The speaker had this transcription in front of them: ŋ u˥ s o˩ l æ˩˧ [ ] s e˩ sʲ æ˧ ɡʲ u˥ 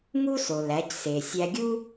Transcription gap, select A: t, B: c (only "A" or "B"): B